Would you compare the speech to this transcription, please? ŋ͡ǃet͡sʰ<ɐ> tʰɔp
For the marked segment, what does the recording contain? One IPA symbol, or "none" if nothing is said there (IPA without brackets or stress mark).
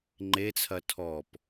ɐ